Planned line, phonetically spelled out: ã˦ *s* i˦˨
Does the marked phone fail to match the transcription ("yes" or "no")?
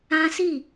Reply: no